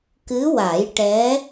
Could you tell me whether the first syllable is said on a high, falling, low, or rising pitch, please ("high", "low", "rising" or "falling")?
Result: rising